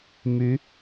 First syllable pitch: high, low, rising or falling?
rising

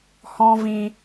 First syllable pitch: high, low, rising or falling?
high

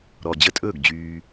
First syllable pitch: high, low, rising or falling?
low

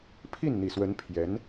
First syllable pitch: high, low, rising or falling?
falling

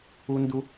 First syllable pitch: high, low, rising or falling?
high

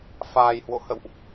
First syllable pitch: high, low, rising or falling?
low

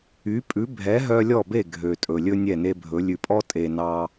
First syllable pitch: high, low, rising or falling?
rising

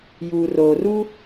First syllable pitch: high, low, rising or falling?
low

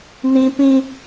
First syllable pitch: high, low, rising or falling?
high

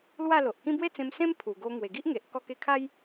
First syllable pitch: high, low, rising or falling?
falling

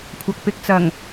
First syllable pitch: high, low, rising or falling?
low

